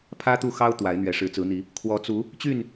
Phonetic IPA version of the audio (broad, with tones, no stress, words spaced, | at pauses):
pʰä˦t̪u˥˨xɑ˦ʊ̯ t̪wa˨˦ɪ̯n̪ɥɛ˨˦ ʂɻ̩˨˦t͡sɹ̩˨˦n̪i˨˦ | kʰwɔ˨˦t͡su˨˦ | t͡ɕy˥˨n